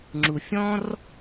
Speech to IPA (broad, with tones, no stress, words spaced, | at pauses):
ŋ͡ǁu˧fʲɔ̃˥r